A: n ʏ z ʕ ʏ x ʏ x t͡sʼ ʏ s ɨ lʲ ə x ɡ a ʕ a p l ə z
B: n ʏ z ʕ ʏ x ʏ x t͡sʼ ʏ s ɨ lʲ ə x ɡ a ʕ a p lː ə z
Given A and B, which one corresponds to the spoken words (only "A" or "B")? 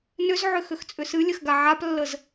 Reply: B